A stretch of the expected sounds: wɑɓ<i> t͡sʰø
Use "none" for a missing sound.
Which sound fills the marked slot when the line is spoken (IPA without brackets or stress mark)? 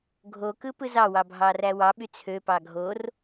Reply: y